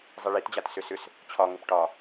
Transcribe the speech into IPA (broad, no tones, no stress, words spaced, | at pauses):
zˤiɭitd͡ʑat sʏsʏs | t͡ɕʰɒŋʊp ʈɒ